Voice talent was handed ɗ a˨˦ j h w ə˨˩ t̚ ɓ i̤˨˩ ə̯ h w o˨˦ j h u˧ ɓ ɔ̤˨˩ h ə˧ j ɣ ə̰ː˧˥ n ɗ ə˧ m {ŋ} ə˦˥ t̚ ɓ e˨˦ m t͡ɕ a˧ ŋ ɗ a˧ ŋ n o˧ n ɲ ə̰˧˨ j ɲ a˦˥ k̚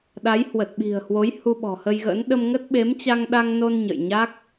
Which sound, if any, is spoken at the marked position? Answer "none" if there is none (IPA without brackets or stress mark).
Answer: ŋ